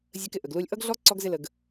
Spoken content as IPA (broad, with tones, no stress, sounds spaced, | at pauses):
zʲ ə˧ k ɪ˧ ʔ ə˨ ɡ l u˧ lʲ ʔ ʌ˦ ɡ ɮ ɔ˦ ǀ ɔ˦ ɡ z ɪ˦ l ə˧ ɡ